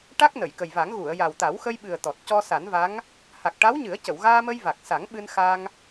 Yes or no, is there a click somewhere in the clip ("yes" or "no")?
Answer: no